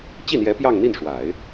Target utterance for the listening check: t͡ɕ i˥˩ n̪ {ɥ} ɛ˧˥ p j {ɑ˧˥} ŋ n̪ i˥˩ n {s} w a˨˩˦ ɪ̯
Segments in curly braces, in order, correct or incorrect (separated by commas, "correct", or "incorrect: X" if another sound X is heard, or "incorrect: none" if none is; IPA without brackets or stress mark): incorrect: j, incorrect: ɑ˥˧, incorrect: ʂ